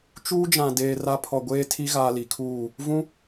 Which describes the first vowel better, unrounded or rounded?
rounded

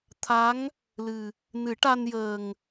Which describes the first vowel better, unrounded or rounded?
unrounded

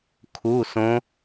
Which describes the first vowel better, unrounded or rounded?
rounded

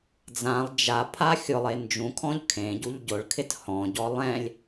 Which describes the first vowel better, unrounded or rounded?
unrounded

